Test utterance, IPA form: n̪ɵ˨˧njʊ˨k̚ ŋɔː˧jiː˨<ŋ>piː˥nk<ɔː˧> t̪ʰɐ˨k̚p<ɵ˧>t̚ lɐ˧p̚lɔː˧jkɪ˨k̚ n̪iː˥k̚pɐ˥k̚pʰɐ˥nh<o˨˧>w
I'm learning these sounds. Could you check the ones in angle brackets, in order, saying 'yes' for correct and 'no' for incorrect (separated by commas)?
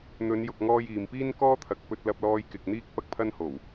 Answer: no, no, yes, no